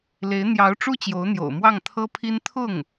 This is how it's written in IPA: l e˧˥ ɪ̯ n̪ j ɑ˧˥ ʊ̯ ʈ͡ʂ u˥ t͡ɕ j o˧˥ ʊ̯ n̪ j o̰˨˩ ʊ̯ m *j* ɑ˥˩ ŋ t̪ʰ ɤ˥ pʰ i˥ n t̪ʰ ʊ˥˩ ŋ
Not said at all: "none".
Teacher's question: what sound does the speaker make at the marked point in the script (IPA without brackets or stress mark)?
w